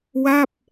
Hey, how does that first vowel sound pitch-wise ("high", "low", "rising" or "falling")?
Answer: falling